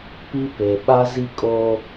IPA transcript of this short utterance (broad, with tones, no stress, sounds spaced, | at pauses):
p i˦ p e˨ ɓ a˦ z i˦ kʼ oː˦